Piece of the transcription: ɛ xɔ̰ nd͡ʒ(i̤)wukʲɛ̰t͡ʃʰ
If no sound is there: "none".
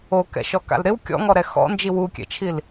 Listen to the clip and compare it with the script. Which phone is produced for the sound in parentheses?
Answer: i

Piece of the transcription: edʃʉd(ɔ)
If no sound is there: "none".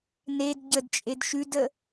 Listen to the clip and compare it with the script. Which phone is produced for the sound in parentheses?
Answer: ə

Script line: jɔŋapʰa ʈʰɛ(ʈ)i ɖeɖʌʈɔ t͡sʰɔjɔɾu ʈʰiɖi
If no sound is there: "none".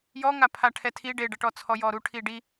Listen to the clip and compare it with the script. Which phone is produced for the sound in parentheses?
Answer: tʰ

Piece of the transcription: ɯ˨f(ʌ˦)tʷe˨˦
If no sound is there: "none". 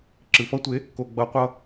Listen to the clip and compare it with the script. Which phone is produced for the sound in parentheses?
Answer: ʌ˦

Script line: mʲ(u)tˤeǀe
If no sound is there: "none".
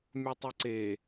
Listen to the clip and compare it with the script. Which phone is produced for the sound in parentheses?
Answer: u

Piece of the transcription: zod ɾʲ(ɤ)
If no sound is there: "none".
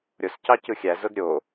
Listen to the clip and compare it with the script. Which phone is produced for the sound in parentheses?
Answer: o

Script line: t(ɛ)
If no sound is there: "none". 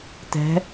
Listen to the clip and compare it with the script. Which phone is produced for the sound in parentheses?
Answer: ɛ̤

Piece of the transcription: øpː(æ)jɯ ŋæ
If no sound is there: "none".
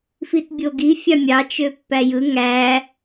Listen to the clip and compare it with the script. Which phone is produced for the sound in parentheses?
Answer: æ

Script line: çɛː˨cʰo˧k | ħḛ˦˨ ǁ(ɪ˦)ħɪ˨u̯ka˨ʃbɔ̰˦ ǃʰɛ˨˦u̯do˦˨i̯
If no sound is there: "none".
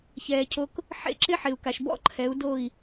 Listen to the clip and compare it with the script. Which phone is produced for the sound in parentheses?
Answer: ɪ˦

